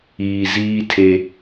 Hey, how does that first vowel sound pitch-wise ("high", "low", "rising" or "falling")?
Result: low